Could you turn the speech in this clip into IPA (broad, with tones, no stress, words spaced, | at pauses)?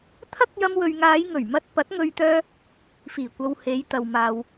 t̪ʰɐ˥k̚jɐ˧mwɵ˨ɥŋaː˨˧j ŋɵ˨˩ɥmɐ˧t̚ pɐ˨˥t̚ŋɵ˧ɥ t̪œː˥ | fiː˨˩kʷɐ˨w he˨˧jt̪ɐ˨w maː˨w